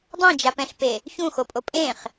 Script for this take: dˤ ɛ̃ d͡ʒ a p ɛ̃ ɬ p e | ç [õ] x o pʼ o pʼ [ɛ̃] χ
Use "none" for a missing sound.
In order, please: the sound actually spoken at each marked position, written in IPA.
ũ, ẽ

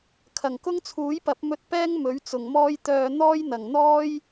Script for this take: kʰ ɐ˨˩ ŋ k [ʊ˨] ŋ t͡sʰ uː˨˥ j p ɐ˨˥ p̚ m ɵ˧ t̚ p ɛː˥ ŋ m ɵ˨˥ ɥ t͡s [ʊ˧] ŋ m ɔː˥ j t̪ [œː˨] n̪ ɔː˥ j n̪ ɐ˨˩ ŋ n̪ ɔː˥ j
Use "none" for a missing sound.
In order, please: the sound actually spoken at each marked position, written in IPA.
ʊ˥, ʊ˨˩, œː˨

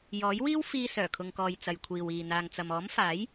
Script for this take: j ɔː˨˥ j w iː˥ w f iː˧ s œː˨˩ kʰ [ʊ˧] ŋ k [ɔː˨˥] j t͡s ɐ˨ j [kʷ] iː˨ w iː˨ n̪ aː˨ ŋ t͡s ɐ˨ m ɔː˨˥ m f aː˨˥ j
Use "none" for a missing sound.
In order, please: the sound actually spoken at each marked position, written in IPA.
ʊ˨, ɔː˨, kʷʰ

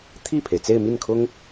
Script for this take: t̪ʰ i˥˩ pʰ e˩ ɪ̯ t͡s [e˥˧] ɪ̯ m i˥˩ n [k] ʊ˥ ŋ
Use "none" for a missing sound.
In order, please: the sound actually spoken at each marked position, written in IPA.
e˥˧, kʰ

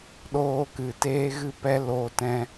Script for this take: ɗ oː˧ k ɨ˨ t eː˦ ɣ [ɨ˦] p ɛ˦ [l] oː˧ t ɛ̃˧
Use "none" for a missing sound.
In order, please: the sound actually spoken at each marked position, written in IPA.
ɨ˦, l

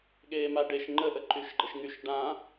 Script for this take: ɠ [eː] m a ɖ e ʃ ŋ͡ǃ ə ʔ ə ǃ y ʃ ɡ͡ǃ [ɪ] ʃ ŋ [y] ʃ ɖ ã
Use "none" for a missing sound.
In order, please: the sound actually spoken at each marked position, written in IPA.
eː, ə, y

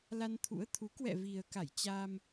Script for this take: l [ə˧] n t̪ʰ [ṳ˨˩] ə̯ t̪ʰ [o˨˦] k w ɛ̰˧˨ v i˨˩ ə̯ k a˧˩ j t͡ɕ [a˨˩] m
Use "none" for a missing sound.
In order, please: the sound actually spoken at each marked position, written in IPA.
a˧, ṵ˧˥, u˨˦, a˧

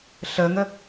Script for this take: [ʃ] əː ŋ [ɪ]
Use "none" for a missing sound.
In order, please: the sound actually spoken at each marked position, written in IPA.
ɬ, ə

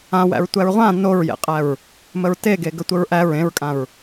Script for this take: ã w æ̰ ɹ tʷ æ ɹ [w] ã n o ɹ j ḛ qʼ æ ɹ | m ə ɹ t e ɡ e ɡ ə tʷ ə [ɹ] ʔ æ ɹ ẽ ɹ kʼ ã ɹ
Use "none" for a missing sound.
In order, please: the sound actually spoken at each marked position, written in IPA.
ʁʷ, ɹ

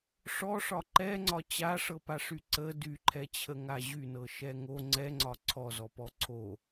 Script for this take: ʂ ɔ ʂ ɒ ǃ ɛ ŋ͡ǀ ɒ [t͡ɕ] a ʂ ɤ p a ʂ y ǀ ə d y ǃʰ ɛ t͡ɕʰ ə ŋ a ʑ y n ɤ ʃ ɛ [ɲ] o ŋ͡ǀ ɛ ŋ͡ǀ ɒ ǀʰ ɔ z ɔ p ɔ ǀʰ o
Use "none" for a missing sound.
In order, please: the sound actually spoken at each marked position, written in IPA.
t͡ɕ, ŋ

